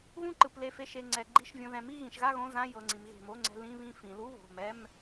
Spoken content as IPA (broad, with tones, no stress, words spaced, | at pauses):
ɣũ˥˨ǃɯ˩˧˩ple˧˩fe˧ ʃe˩˧˩ŋ͡ǀɛ˩˧ ɡ͡ǃi˧˥˧ʃvʲõ˧ ðɛ̃˩˧mi˥˨ɣĩ˩˧ʃɣa˥˨ ɣõ˧˥˧zã˧˥˧jɤ˩˧˩ŋ͡ǀĩ˩˧m ɣe̤˧˩ mo˧˥˧ ŋ͡ǀɛ̤˧lĩ˧˥˧βĩ˥˨ fĩ˩˧lu˧˥˧ βo̤˩˧˩mɛ˧˥˧m